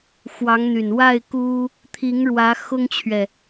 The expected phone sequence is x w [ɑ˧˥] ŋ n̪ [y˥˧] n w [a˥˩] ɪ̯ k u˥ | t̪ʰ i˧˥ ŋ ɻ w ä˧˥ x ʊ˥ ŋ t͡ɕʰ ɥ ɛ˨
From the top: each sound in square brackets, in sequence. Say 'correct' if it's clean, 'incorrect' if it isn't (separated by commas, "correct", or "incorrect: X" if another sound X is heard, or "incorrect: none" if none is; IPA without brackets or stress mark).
correct, incorrect: y˨˩, correct